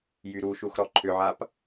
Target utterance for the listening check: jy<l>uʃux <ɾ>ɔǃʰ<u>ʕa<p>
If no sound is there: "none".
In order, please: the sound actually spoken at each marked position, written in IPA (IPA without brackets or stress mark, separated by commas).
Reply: ɾ, ɾ, ʏ, p